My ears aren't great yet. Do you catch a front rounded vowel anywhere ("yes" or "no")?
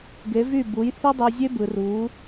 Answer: yes